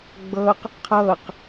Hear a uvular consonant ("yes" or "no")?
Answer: yes